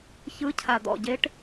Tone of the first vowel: rising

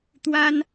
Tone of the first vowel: high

